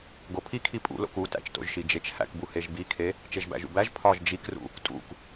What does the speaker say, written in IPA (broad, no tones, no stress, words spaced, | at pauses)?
ɡopʰikʰi pʼṵlo̰k utæ̰t͡ʃto̰ʒʃi d͡ʒet͡ʃhæ̰kbu heʒbikʰe | t͡ʃeʒbæ̰ʒṵbæʒ pʰɒʒ d͡ʒikrṵ | tʼṵk